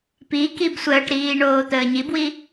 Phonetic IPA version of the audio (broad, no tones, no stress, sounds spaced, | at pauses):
p i k i b sʷ əː ʈ ɾ iː ɳ oː t̪ əː ɲ i b w i